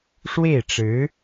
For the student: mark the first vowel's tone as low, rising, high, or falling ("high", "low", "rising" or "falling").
falling